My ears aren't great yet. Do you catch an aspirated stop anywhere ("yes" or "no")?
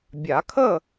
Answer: yes